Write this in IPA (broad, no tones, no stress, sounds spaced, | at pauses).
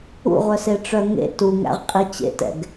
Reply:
ṵ ʁʷ œ s e ʈ͡ʂ œ ŋ ḛ t u ŋ æ̰ ʁ qʼ i t͡ɕ ḛ t ɛ̰ ɡ